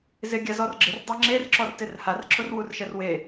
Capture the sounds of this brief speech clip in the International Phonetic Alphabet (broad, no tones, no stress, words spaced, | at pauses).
zɪ ɡʲazɔrɡ͡ǁɪr dˤaŋ͡ǁer ǁɔrtɪrhar ǁʊrwurʃɛrwe